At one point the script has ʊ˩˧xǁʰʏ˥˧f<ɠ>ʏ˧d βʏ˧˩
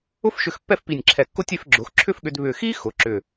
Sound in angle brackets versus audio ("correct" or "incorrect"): correct